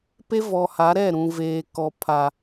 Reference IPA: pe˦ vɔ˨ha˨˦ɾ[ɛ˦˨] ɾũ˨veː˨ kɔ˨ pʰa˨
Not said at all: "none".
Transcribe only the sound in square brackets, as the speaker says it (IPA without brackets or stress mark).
ɛ˦˨